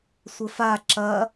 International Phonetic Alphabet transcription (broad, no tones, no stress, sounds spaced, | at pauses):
sʷ ɘ f a ǁ ɐ